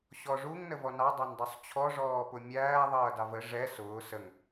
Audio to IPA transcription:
ɕ ɔ ʐ u ŋ n ə v ɔ n ɑ dˤ ɑ n dˤ u sˤ t͡ɕʰ ɔ ʐ ɔː p ʊ mʲ æː ðˤ ʌː d ɑ v ə ʐ ɛ s ʊː s ə ŋ

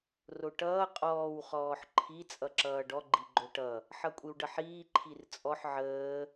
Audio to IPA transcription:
r o ʈ ʌː qʼ ɔː w χ ɔː ħ ǃʰ i t͡sʼ ʌ ǁ ʌː ɖ ɔ ɡ͡ǃ i ɡ͡ǃ o ʈ ʌ | ħ ʌ kʷʼ i w ɖ ʌ ħ iː ǃʰ i r t͡sʼ ɔ ħ ʕ əː

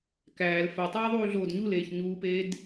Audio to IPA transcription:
k æː l f æ tˤ eː ðˤ uː ɮ oː d ɲ u l eː ç ɲ uː p eː d

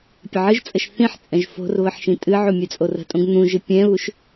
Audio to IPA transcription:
pʲ ə ʕ ɨ ʒ t͡sʼ ə ʃ θ ĩ ħ t͡sʼ ɛ̃ ʒ f o̤ r β ə ħ ʃ ĩ tʼ ɨ ʕ u mʲ ɛ t͡sʼ o r ə̤ tʼ õ ɡ n̪ ũ ʒ ɨ pʲ ɛ̃ β u ʃ

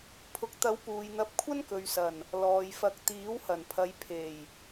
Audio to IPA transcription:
pʰ ʊ˨ k̚ t̪ ɐ˨˥ w p uː˨ j n̪ ɐ˧ p̚ kʷʰ ɐ˥ n k ɵ˨ ɥ s ɐ˨˩ n | l ɔː˨ j f ɐ˧ k̚ t̪ iː˨˥ w h ɐ˨˩ n pʰ ɐ˨˧ j pʰ e˨˩ j

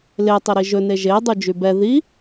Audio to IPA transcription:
l e tˤ i ɾ i ʒ ɵ n e ʒ e dˤ u d͡ʒ y b ɛ ð i

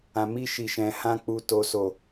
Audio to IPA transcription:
ã˨ m i˧ ʃ i˨ ʃ ɛ̃˨ h ã˧ k͡p u˨ t o˨ s o˨

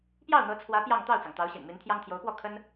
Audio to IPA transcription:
p j ɑ˥˩ ʊ̯ n̪ ɤ˧˥ t͡sʰ w ä˧˥ p j ɑ˥˧ ŋ t̪ ɑ˥˩ ʊ̯ t͡s ɑ˩ ŋ t̪ ɑ˧˥ ʊ̯ ɕ ḭ˨˩ n m i˧˥ n t̪ʰ j ɑ˥ ŋ t̪ʰ j o˧˥ ʊ̯ p w ɔ˥˩ kʰ ə˥ n

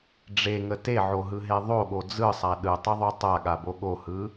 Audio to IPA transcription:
ɖ͡ʐ e ŋ ə t e ʕ o ɦ ɯ ɦ e ðˤ o ɠ o d͡z ɯ sˤ a ɗ ɯ tˤ ɯ ðˤ o tˤ a ɠ a b o ɠ o h ɯ

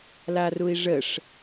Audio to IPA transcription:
l a r u i̯ ʐ ə ʂ

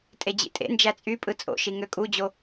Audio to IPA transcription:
tʼ e d͡ʑ ḭ tʼ ḛ n d͡ʒ æ t͡sʼ y pʼ ɯ t͡sʼ o̰ ʃ i ŋ ø kʼ u d͡ʑ o

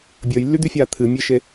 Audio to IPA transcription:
bʲ əː j lː y d̪ y fʲ aː t̪ʰ ɨ mʲ e ʃ e

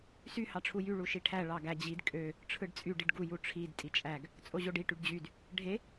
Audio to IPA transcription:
s y h ɑ ʈ͡ʂʰ u j y ɭ u ʃ i ʈʰ æ ɭ ɑ ɡ æ d͡ʑ i d kʼ ø | ʈ͡ʂʰ ɯ ɖ t͡sʼ y ɖ i ɖ ɡ u j u ʈ͡ʂʰ i d tʼ i t͡ʃʼ æ ɡ | t͡sʼ o ʑ o ɖ i ʈ y ɖ d͡ʑ y d | ɖʱ e

